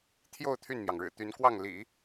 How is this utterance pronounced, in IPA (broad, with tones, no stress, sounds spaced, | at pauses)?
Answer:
t̪ʰ j o˥˧ ʊ̯ t̪ʰ y˥˩ n m j ɑ˩ ŋ ɻ ɻ̩˨˩ t̪ y˧˥ n k w ɑ˥˩ ŋ l ḭ˨˩˦